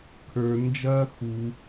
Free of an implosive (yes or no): yes